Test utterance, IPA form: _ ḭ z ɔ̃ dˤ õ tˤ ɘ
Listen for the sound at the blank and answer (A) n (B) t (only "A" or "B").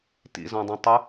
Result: B